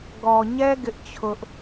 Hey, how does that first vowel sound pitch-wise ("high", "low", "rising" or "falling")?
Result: low